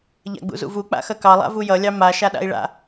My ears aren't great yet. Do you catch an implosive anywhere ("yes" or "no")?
yes